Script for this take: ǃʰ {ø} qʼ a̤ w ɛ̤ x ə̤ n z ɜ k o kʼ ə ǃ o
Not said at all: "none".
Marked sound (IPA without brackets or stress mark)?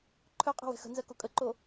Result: œ